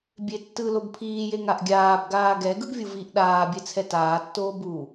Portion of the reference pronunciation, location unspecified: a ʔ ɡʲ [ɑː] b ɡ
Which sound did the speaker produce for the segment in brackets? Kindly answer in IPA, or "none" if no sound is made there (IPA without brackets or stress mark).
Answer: aː